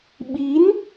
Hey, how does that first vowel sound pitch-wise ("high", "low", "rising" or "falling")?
rising